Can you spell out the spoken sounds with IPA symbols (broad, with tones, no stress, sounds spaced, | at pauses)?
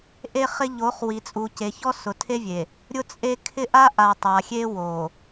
ʔ e˦ χ ɪ˦ ʎ o˨˦ χ w i˨ t͡sʼ u˨ c e˨ ç ɔ˦ s ʊ˨ tʰ e˦ vʲ e˨ | ɾʲ ʊ˦ t͡sʼ e˦ kʰ ɪ˦ ʔ a˦ ʔ a˨ tˤ a˨ xʲ e˦ w o˨